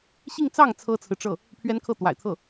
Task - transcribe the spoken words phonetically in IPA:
ɕ i˥˧ ŋ t͡s ɑ˥˩ ŋ t͡sʰ ɤ˥ t͡sʰ ɹ̩˨ ʈ͡ʂ ɤ˥˩ | pʰ ɥ ɛ˥ n kʰ ɤ˥˩ t̪ w a̰˨˩ ɪ̯ t̪ʰ ɤ˥˩

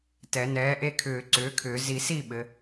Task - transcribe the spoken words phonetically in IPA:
t ɛ˨˩˦ n ɛː˨˥ ʔ e˦˨ kʰ ʏː˨˩˦ ǀ ʏː˨˥ kʰ ʏː˨˩˦ z i˨˩˦ s i˦˨ ɓ ɘ˨˥

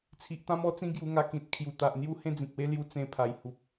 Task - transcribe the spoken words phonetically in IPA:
t͡sʰ i˨ ʔ t̪ ã˦ m ɔ˦ t͡s ĩ˦ ɡ j u˧ ŋ a˧ k ĩ˨ t̚ kʰ j u˨˩ t̪ a˨ ʔ n̪ j u˦ h ẽ˦ d͡z ĩ˨ k̚ w e˦ l j u˧ t͡s ẽ˧ pʰ a˨˩ j h u˨ p̚

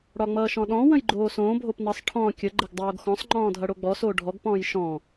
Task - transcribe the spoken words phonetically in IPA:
ɽ ɒ ŋ͡m ʌː ʃ ɔ̃ ɗ ɔ̃ w ə̃ j ɡ͡ǃ oː s õː bʱ o p n ʌ sˤ ʈʰ ɔ̃ kʲ ə ɡ͡ǃ ə ɡ dˤ oː ɡ x ɔ̃ sˤ ŋ͡ǃ ɔ̃ː dʱ ʌ ɽ o ɡ͡b ɔ s oː ɖʱ ɔ ɡ p ɔ̃ː j ʃ ɔ̃

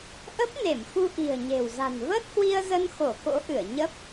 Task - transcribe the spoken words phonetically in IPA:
ʔ ə˦˥ p̚ n e˧˩ m x u˧ ʔ i̤˨˩ ə̯ ɲ e̤˨˩ w z a̤˨˩ n v əː˦˥ t̚ h w i˧ ə̯ z ə˧ n x o˧˩ k o̰˧˥ ʔ ɨ˧˩ ə̯ ɲ ə˦˥ p̚

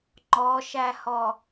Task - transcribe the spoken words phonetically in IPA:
ŋ͡ǃ ɔ ʃ æ h ɔ

